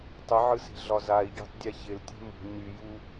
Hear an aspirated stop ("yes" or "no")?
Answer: no